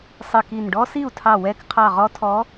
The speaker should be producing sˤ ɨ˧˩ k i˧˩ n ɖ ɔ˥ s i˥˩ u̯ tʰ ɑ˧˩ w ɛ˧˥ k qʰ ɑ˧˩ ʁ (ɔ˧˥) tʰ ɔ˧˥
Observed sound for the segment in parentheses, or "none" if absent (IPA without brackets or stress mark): ɔ˧˥